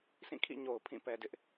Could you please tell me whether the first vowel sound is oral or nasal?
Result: nasal